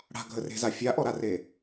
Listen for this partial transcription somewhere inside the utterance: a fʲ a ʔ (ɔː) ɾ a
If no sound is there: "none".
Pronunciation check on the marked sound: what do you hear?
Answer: ɔ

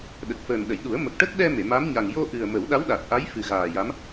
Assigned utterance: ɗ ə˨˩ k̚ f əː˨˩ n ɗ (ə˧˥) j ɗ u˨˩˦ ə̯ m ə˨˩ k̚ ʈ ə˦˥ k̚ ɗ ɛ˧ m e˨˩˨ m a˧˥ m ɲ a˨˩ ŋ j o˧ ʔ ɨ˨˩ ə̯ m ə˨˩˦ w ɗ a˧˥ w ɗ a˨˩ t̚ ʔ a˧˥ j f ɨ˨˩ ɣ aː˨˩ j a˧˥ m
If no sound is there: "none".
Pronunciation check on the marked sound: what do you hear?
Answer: ə˨˩˨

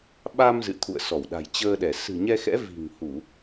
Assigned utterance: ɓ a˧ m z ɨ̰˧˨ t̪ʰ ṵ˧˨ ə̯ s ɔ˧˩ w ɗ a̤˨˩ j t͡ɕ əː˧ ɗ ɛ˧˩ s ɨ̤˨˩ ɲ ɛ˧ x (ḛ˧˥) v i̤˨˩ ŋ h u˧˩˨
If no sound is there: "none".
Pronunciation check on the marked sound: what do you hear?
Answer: ɛ̰˧˥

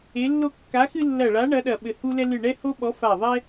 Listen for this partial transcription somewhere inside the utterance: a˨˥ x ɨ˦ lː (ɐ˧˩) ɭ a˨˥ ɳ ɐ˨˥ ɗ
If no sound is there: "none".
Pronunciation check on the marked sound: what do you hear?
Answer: ɐ˧˩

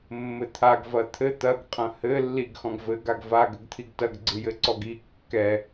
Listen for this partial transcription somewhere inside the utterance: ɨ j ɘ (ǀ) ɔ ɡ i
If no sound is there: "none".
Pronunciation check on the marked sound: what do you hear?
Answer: ǀ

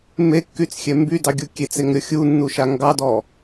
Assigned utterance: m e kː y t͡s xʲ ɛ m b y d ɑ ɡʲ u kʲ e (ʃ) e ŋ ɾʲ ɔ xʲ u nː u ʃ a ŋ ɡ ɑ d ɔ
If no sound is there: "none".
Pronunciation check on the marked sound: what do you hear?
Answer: t͡s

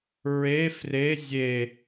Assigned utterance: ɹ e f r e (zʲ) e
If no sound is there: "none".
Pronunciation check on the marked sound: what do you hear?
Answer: zʲ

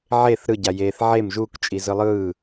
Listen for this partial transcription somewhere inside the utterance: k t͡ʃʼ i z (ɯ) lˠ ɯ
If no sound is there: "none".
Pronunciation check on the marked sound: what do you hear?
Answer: ɯ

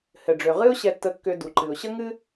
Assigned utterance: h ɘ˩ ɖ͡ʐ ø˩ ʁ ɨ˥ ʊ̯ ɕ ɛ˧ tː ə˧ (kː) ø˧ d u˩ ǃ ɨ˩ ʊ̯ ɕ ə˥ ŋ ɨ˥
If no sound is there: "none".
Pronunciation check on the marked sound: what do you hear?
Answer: kː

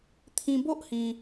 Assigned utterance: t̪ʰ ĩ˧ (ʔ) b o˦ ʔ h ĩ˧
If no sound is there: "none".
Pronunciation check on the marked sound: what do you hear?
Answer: none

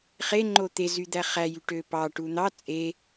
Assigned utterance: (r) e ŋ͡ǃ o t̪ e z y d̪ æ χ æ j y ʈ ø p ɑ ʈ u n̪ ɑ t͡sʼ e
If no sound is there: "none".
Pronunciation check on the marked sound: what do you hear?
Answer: χ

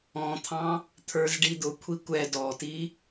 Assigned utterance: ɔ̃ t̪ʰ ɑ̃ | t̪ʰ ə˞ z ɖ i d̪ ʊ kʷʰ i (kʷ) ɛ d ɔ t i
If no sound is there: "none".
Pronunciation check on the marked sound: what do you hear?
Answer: kʷ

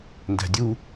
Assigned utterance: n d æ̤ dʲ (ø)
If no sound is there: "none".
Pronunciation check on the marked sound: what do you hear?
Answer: u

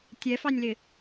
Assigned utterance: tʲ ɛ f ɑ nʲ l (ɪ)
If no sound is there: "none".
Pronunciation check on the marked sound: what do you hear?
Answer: ɪ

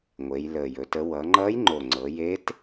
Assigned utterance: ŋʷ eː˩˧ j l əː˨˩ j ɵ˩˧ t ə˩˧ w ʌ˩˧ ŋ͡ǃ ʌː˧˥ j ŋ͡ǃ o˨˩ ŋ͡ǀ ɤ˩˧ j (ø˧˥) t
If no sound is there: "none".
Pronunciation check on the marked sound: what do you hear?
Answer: e˧˥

